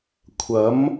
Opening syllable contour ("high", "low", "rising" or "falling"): rising